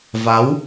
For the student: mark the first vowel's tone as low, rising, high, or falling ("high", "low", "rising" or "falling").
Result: rising